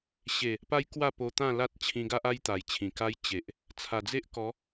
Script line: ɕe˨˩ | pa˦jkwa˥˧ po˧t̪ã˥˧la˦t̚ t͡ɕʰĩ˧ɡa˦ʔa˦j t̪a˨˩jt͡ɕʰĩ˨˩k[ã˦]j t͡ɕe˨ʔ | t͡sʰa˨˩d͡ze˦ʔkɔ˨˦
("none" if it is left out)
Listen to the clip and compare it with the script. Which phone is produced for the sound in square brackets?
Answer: a˦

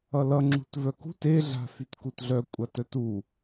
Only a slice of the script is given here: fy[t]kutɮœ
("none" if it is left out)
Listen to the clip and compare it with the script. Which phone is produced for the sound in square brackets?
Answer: t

